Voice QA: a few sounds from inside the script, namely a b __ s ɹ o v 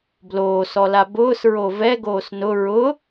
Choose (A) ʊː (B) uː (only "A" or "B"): A